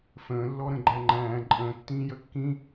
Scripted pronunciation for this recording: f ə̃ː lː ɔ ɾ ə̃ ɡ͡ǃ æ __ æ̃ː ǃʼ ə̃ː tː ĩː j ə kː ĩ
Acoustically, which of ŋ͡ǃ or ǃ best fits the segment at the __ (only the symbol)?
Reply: ŋ͡ǃ